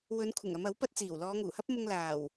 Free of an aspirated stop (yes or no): no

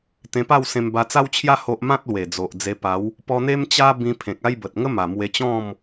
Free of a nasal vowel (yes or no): no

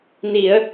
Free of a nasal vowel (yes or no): yes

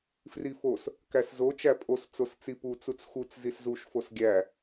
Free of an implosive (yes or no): yes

